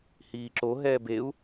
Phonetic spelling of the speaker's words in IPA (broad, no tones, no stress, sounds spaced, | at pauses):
h iː ǁ o ɦ ɛː b e u̯